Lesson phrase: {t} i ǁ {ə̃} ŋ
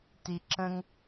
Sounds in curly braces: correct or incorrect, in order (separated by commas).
correct, correct